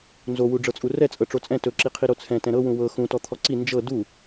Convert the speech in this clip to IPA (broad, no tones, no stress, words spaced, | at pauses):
nzowu ɖ͡ʐɤt͡sʼurɛ t͡sʼɤʈ͡ʂot͡sʼɛ̃ tɵǁiqʰi ɾot͡sʰɛ̃ tɛ̃ɾɤwũ wɤ xũtɔ t̪ʰɔǀi nd͡ʒɤ du